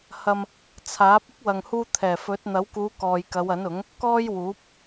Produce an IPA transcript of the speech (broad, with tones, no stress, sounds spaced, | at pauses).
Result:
h ɐ˧ m | t͡sʰ aː˨˥ p̚ ɪ˥ k̚ w ɐ˨ ŋ h uː˧ t̪ʰ ɛː˨˩ f ɵ˨˥ t̚ n̪ ɐ˨˥ w k uː˨˧ k ɔː˨ j k ɐ˨˧ w ɐ˨˥ n ʊ˨˥ ŋ | k ɔː˥ j w uː˨˥ p̚